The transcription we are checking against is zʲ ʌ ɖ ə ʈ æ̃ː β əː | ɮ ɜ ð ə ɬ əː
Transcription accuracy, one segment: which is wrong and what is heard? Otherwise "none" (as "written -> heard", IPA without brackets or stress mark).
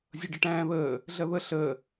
ð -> β